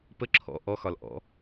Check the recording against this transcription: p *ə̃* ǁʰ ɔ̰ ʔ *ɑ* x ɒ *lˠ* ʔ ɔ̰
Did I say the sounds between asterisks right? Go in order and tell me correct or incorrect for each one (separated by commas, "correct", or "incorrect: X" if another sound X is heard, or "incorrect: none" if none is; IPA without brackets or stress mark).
incorrect: ə, incorrect: ɔ, incorrect: l